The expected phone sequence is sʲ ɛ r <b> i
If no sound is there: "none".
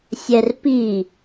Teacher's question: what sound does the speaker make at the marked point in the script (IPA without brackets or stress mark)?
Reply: p